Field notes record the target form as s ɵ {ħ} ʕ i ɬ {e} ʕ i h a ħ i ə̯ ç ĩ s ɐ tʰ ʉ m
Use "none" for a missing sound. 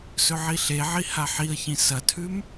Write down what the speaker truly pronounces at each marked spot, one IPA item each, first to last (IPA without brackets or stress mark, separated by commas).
none, e